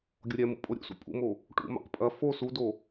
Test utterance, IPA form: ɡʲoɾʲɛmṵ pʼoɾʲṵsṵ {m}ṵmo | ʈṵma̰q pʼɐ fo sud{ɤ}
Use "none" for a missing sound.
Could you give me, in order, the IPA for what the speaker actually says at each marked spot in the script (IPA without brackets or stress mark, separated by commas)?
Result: pʼ, o